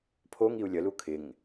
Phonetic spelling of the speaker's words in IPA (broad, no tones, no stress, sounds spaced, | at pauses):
pʰ o ŋ i u̯ lʲ ə l u kʰ ɪ ŋ